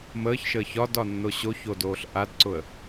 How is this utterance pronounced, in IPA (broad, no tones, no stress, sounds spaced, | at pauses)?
m əː ç ʃ əː ç ɒ d ɒ nː o ɕ o ç o d oː ɬ ʔ a d ǀ ʊ ə̯